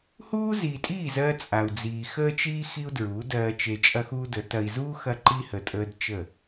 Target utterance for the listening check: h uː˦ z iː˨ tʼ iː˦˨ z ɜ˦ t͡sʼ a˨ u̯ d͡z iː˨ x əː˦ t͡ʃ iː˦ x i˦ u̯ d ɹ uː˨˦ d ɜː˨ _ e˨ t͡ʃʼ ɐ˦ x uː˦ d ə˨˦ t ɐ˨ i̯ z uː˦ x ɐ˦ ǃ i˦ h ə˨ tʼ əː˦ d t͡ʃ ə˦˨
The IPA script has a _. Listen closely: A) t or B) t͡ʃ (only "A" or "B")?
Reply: B